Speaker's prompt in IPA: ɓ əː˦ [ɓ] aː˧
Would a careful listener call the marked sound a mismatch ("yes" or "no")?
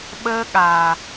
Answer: yes